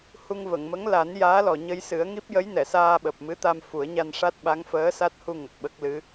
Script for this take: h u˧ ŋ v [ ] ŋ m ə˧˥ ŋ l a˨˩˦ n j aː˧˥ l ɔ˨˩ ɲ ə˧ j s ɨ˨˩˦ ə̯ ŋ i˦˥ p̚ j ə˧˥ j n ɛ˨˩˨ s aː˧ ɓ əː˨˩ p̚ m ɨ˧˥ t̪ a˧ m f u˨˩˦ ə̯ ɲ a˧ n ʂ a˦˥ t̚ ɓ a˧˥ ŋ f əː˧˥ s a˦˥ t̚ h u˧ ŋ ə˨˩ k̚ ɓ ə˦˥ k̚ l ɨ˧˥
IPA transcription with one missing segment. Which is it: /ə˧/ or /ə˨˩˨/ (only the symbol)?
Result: ə˨˩˨